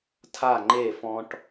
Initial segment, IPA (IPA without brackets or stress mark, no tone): tʰ